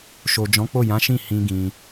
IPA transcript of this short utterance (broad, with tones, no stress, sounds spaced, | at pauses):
ʃ o˨ d͡ʒ ɔ̃˨˦ k͡p o˦˨ j ã˨˦ ʃ ĩ˦˨ h ĩ˧ ɡ ĩ˧